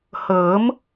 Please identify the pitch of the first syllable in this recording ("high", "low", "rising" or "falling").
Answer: rising